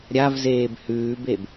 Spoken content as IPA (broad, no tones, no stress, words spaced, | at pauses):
ɾʲavzeːb hʉːbeb